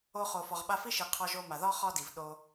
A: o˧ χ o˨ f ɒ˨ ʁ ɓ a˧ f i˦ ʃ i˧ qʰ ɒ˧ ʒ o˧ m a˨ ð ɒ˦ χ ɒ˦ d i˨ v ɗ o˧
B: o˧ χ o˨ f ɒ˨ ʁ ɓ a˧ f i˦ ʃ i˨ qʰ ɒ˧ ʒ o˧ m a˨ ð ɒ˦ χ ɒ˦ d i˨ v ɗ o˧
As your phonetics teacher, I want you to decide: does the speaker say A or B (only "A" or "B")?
B